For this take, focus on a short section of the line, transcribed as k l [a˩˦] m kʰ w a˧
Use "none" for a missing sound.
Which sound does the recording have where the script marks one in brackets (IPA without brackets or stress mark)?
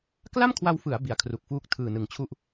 a˥˩